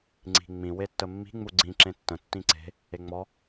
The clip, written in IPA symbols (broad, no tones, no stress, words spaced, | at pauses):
ŋ͡ǀi̤ŋ͡mĩ wetːəmːi̤ ŋ͡muɡ͡ǀĩ ǁẽtːə̃ tːĩǀe̤ | eŋ͡mɔ